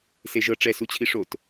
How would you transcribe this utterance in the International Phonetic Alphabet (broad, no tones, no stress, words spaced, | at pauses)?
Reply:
seʒɤ ʈ͡ʂɛ sut͡ɕʰiʂot